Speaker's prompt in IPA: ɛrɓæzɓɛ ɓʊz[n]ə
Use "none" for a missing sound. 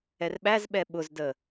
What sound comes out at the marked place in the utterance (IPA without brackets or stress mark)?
d